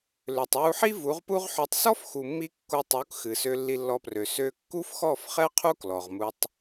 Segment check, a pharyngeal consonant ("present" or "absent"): present